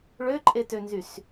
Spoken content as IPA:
ɭ ø ǃʼ e t ø n z y s

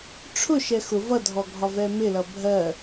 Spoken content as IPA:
ʈ͡ʂʰ ʊ ʃ ɛ x ʊ v ʌ dʱ ɔ ɡʱ ɒ v ɛ m ɪ l ʌ bʱ ɜ

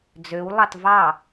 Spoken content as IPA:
d͡z ø w lˠ ɑ t v ɑ

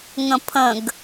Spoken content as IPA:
ŋ ə̃ pʰ ə̃ ɡ

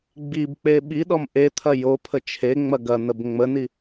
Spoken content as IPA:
ɡ͡b i b k͡p e ɓ i ɗ ɔ m ʔ e t̪ʰ ɐ j o pʰ ə t͡ʃʰ e ŋ͡m ɐ ɡ ɐ n̪ ə b ŋ͡m ə n i

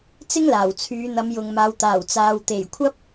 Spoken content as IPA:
t͡s ɪ˥ ŋ l aː˨˩ w t͡sʰ yː˨˧ n̪ ɐ˨˧ m j ʊ˨ ŋ m aː˨˧ w t̪ aː˨˩ w t͡s aː˨ w t̪ e˨˩ j kʷʰ ɐ˥ p̚

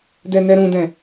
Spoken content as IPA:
d ɛ n ɛ ɾ ũ d ɛ̃

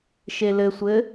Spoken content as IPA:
ʃ e l ɘ sʷ ɘ

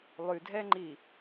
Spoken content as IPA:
lˠ ʉ dʱ ɛ ŋ͡ǃ i

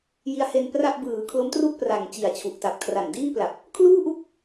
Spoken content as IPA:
j i˦˥ a̯ h e˧ n p r a˥˩ ʔ b ɯː˩˦ kʰ l o˦˥ m t r u˥˩ k̚ p r a˨˩ ŋ t͡ɕ i˨˩ a̯ t͡ɕʰ u˨˩ ʔ t a˨˩ p̚ kʰ r a˨˩ n d iː˥˩ p l a˨˩ p̚ | kʰ l uː˥˩ ʔ u˥˩ k̚

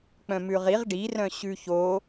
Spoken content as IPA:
k͡p œ̃ m ʉ ʁ i ʁ ɖ i r œ̃ ɕ ʉ ç o

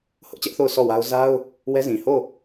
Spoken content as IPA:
h ʊ˦ ʔ t͡ɕ ɛ˦ ʔ θ o˦˨ ʊ̯ sʰ ɔ˦˨ w a˦ ʊ̯ z a˦ ʊ̯ | w ɛ˦ z ĩ˨ h o˦˨

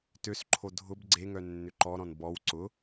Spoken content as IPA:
t ø s ǃʰ o dʱ ʊ b ɡ͡ǀ e ŋ œ nː ʏ ǃ ɔ ɾ ɔ̃ n b ɔ w ǀ ʊ

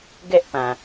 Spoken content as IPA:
ɡ ɛ˦ ʔ p ã˨

